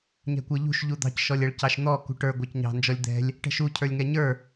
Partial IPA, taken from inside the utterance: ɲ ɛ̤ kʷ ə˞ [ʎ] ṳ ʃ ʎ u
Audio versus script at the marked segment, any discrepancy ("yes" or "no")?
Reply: no